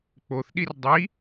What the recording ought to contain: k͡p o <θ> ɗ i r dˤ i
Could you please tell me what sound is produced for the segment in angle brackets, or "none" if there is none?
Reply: θ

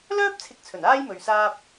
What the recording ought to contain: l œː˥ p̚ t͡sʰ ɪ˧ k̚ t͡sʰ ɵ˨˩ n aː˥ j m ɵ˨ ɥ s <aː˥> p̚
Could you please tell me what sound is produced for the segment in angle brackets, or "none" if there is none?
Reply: aː˧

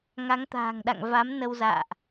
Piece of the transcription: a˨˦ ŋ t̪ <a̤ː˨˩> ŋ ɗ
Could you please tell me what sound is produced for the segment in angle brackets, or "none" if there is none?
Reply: a̤ː˨˩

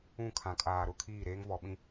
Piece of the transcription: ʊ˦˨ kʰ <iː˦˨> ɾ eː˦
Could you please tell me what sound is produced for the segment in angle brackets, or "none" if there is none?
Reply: iː˦˨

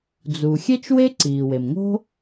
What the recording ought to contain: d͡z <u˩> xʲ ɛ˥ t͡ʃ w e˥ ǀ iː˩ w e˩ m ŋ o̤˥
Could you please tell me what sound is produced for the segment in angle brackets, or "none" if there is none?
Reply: u˩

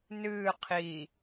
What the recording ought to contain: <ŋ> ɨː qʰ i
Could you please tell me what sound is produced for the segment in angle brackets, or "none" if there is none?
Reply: n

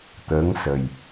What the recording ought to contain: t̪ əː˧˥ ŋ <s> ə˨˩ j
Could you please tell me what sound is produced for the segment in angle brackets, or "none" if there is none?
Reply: s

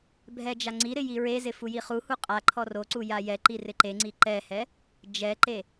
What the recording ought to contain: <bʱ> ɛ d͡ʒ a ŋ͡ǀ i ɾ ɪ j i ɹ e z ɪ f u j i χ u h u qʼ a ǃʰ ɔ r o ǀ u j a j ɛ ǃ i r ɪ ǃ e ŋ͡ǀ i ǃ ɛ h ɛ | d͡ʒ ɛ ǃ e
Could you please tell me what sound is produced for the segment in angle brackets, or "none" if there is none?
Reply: bʱ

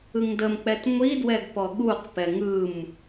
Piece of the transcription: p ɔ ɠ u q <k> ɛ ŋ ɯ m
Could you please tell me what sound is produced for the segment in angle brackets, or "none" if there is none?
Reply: p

